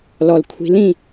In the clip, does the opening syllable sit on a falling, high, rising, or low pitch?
low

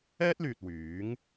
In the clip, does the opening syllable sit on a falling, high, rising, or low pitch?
high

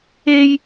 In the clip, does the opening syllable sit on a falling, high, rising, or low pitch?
high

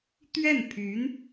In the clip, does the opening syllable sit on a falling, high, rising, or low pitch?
falling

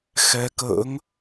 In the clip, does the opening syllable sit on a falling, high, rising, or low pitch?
rising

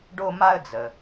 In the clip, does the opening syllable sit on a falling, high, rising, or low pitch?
high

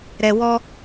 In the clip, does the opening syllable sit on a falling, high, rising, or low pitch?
high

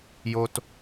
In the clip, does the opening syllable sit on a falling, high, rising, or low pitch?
high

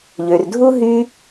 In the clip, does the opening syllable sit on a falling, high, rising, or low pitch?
low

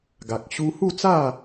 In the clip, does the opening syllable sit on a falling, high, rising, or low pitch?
low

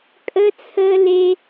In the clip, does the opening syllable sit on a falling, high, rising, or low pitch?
high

